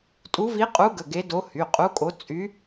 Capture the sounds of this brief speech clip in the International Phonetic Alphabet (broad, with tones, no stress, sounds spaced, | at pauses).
tʼ u˧˥ v i˧˥ qʼ u˧˥ ɡ ə˩˧˩ ɡ e˧˥ d o˧˥ h y˩˧˩ qʼ u˧˥ kʼ o˧˥ t͡sʼ y˧˥